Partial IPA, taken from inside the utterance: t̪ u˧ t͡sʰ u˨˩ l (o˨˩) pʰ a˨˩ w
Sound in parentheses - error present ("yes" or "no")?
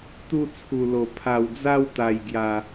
no